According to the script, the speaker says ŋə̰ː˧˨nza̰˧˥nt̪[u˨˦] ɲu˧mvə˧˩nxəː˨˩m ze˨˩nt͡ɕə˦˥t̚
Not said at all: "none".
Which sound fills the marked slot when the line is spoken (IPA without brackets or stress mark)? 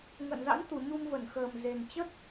u˨˩